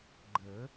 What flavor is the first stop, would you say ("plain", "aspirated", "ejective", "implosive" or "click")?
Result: click